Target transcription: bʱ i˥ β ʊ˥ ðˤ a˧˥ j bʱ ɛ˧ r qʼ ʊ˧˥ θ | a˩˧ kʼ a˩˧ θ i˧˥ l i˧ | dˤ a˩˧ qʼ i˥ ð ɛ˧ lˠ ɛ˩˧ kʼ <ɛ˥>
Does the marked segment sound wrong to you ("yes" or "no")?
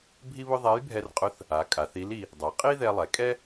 no